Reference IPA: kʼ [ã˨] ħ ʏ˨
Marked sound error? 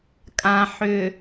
no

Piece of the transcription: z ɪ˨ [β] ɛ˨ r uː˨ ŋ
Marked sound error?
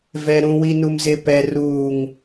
yes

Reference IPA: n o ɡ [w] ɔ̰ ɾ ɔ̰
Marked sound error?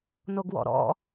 no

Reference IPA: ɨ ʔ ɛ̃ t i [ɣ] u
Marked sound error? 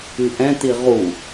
yes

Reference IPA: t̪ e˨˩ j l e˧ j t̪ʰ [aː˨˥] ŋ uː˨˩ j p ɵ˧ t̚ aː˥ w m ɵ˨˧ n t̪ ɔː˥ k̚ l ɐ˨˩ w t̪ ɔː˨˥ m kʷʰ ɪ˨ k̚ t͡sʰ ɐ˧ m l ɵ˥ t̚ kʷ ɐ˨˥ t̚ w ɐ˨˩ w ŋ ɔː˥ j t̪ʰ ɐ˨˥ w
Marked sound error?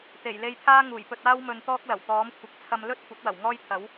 yes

